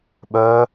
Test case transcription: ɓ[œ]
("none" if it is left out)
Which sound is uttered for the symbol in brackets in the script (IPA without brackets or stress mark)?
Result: œ